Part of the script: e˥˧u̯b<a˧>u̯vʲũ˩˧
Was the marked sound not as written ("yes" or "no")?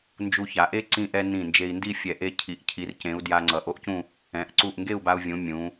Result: no